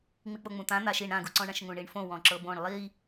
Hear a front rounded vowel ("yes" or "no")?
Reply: no